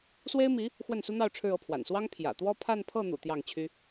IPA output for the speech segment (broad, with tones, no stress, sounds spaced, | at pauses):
s w e˥ ɪ̯ m i˧˥ | x w ə˥˩ n s u˥ n̪ ɑ˥˧ ʊ̯ ʈ͡ʂʰ ɻ̩˥˧ ɤ˥˩ pʰ w a̰˨˩ n s w ɑ˥ ŋ pʰ j ä̰˨˩ t̪ w ɔ˥˧ pʰ a˥˧ n pʰ ɤ˥˩ n̪ ṵ˨˩ t̪ j ɑ˥˩ ŋ t͡ɕʰ y˥